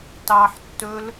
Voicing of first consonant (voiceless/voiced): voiceless